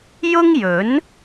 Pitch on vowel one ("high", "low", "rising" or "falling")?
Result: high